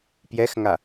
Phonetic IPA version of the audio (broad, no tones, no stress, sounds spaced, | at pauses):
p j ɛ x ŋ a